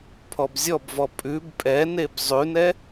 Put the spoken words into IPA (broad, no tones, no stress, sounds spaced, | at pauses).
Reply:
pʰ ɔ b zʲ ɔ b v ɔ pʼ ʉ b pʼ ɛ n e b zˤ ʉ n ɛ